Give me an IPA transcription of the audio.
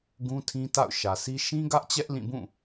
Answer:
ɡ ũ˦ tʰ ĩ˦ t a̰˦˨ ʊ̯ ʃ ä˨ sʰ i˦ ʃ ĩ˦ ɡ ä˦ ʔ t͡ɕ ɛ˦ ʔ l ĩ˦˨ b ũ˦˨

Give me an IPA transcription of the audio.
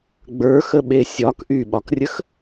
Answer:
ɡ͡b ə˞ x ə ɓ e sʲ ɒ k ʔ y ɓ ɒ k rʲ ə x

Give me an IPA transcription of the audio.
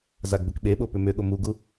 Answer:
z a ɡ b ʏ k ɓ e ɓ o p ʏ m ʏ ɠ o m u ɡ u

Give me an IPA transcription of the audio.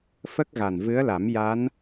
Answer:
f ə˦˥ k̚ ɣ a˨˩ n v ɨ˧˥ ə̯ l a˨˩˦ m j a˧˥ n

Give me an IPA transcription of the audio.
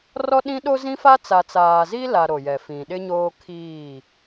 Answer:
r ɔ˦ ɗ ĩ˦ ɗ o˦ z ĩ˦ f a˦ t͡s a˨ t͡s aː˨ z i˦ l a˨ ɾ o˨ j ɛ˨ f ĩ˨ ɗ ɪ˦ ɲ oː˦ kʰ iː˦˨

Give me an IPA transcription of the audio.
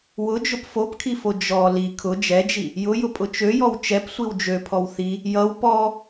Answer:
w ʊ d͡ʒ ʊ p f o p kʰ i f o d͡ʒ ɔ l i kʰ ʊ d͡ʒ ɛ d͡ʒ i | j ʊ j ʊ pʼ ʊ t͡ʃ ø j ɔ w t͡ʃ ɛ p sʷ i w d͡ʒ ø pʰ ɔ w θ i | j ʌ w p ɔ

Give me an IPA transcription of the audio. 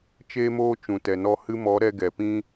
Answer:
t͡ʃ eː˦ m oː˦ t͡ʃ ũ˨ t ɛ˨ n ɔ˧ h ɨ˧ m ɔ˨˦ ɾ ɛ˧ ɡ ɛ˨ p ĩ˦

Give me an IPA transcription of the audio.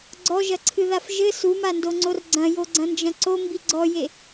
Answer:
ɡ͡ǀ ɔ ʒ ɐ ǀʰ ɨ ð a f ʒ ɘ s u m a n d o ŋ͡ǀ o r ɡ͡ǀ ɐ̃ j o ɡ͡ǀ ɐ̃ n d͡ʒ ɐ̃ ǀ o m b i ɡ͡ǀ ɔ j e

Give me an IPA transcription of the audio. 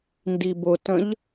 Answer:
n d i b ʊ t ə̃ ʎ

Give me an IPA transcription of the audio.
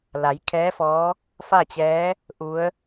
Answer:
l a˩˧ j kʰ ɛː˧˥ f ɔː˧˥ | f a˥˨ t͡ɕ ɛː˧˥ | ʔ u˧˥ ə̯

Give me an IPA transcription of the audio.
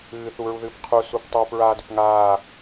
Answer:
ɨː θ u ɹ u ð ɨː p qʰ u s u p tˤ iː p ɹ aː d ʏ p ŋ aː

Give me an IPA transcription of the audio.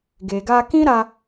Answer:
ɡ e˨ ɡ a˧ k ĩ˦ ɾ a˧

